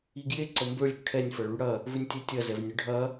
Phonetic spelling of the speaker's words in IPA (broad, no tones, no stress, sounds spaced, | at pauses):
i ɡ j e ǀ ə m b ø lʲ ɽ ʏ ʈʰ ɛ nʲ f ɐ ɭ y ɽ ɐ | v ʏ nʲ tʲ ɛ tʲ ɐ z ɛ v nʲ ʊ ɖʱ ɐ